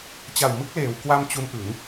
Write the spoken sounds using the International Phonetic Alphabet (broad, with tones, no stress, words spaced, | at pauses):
t͡ɕa˨˩wmɯ˦˥k̚leː˩˦w kwa˧m t͡ɕu˦˥nʔɯ˩˦ŋ